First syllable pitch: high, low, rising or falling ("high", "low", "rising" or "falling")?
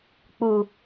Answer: low